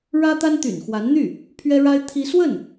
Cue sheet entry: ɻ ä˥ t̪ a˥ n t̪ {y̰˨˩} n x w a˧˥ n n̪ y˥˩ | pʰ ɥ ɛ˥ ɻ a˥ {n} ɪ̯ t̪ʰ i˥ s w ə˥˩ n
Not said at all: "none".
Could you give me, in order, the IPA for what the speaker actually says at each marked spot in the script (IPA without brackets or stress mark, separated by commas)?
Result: y̰˨˩, none